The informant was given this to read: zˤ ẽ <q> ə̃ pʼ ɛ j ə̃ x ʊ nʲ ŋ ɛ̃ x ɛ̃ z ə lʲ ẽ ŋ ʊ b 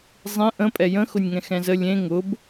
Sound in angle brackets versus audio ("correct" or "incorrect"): incorrect